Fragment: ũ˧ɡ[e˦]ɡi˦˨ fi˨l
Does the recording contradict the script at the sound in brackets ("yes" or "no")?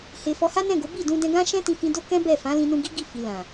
yes